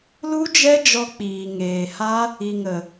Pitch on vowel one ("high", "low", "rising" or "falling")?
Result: high